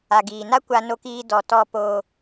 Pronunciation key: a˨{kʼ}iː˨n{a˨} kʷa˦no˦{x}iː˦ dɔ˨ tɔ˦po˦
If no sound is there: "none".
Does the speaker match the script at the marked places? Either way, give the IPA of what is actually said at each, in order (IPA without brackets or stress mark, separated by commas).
ɡ, a˦, k